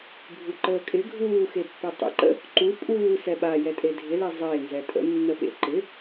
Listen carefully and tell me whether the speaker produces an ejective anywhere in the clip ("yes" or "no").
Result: yes